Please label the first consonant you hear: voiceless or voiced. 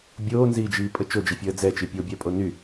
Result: voiced